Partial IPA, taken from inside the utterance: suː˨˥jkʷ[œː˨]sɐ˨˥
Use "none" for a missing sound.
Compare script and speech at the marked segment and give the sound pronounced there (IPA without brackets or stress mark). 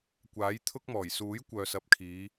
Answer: œː˨